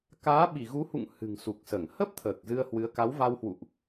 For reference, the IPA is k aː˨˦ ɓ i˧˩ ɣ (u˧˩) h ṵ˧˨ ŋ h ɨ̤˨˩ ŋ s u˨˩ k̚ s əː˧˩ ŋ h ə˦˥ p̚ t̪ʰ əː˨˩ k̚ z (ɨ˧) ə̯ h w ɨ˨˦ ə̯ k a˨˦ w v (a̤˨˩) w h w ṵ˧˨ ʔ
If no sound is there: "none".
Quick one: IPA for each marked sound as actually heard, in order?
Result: u˨˦, ɨ˧, a˧

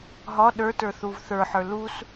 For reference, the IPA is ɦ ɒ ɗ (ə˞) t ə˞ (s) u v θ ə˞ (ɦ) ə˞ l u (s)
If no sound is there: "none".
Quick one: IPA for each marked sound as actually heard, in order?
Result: ə˞, θ, ħ, s

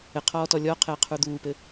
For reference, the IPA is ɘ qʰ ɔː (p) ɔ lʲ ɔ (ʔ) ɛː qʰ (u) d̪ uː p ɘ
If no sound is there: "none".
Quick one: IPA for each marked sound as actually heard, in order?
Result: t, qʰ, u

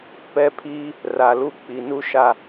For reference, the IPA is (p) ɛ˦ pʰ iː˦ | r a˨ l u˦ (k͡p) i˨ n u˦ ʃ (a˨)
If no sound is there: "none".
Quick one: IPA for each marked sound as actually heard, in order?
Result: p, k͡p, a˨

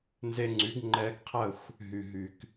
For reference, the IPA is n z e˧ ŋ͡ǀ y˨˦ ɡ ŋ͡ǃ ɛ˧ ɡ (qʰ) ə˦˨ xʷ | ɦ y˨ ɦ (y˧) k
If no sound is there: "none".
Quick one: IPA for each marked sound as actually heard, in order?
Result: qʰ, y˨

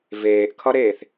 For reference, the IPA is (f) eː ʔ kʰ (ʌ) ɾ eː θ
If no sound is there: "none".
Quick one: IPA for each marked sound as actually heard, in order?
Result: v, ʌ

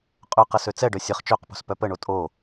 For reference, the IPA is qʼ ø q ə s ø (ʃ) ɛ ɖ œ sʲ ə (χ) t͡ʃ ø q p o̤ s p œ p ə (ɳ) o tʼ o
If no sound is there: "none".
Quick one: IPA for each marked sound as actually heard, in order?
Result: t͡s, χ, ɳ

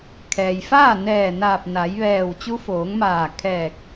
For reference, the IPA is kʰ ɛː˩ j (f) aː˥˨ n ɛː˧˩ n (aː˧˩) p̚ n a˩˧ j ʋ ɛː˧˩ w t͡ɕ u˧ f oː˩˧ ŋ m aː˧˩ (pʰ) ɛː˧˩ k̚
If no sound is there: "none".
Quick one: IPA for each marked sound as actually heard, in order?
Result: f, aː˧˩, kʰ

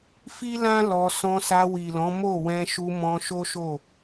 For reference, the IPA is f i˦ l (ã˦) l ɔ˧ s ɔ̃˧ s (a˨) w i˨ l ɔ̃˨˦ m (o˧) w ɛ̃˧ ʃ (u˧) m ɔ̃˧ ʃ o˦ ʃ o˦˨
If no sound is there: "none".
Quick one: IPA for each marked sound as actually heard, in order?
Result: ã˦, a˧, o˦˨, u˧

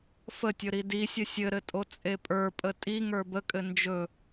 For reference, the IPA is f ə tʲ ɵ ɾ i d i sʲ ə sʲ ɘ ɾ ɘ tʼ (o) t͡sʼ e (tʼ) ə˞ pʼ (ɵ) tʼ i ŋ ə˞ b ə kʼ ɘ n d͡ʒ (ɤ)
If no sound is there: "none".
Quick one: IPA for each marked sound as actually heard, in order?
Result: o, pʼ, ə, ɵ

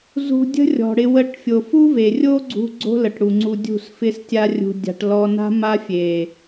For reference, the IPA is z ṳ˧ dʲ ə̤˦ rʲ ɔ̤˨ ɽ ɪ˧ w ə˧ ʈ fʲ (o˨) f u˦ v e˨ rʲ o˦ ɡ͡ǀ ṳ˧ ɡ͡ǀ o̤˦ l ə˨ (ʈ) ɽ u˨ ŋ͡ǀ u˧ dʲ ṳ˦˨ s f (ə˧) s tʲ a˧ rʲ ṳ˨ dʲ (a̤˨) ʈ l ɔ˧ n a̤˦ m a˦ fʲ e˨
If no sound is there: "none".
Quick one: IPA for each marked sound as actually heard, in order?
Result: o˨, ʈ, ɪ˧, a̤˨

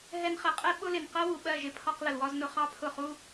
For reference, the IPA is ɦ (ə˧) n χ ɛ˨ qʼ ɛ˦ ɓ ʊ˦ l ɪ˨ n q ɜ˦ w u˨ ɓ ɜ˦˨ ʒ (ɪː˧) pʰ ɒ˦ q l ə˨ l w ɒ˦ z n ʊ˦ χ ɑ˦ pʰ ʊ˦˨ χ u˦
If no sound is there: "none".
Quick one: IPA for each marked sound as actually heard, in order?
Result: ɛ˧, ɪ˧

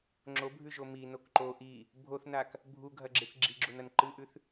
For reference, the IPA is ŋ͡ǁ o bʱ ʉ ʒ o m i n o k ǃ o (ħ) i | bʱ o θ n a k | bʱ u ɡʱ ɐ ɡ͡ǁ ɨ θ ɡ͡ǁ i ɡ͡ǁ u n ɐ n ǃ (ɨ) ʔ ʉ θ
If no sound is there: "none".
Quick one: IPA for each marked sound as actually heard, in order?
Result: ʔ, ɨ

